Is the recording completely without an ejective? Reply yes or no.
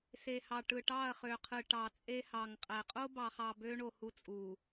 no